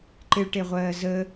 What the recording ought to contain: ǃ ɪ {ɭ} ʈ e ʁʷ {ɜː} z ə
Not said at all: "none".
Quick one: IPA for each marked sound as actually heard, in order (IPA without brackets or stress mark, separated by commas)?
ɭ, ɜː